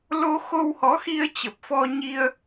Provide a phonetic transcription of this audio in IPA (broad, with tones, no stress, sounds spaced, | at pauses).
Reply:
l o˧ x o˧ w h ɔ˨˦ x i˧ ə̯ t͡ɕ ə˨˩ p̚ f ɔ˧ ɲ i˧ ə̯